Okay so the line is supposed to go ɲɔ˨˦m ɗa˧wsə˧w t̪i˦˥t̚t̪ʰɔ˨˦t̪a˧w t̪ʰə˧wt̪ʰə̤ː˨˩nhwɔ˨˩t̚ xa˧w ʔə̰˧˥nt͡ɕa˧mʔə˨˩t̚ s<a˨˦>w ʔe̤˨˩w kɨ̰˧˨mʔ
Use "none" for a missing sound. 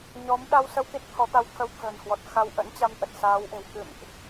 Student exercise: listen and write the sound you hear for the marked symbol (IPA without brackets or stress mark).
aː˨˦